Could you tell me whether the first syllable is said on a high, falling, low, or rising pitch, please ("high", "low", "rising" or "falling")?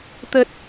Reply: low